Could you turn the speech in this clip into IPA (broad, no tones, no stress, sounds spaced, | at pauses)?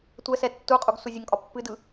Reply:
tʷ ɛ s ɛ tː u qʼ u ɡ s u zʲ ə ŋ kʼ ɒ pː ɨ d ɯ